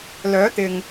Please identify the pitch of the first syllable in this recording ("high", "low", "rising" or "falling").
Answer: rising